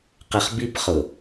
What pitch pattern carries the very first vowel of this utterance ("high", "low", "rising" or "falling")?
low